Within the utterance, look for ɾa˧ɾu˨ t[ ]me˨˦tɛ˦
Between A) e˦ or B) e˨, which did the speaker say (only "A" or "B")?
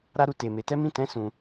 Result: B